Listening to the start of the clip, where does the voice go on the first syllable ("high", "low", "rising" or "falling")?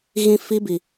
high